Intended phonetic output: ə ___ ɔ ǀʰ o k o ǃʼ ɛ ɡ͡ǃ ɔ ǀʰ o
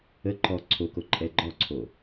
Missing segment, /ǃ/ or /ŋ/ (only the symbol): ǃ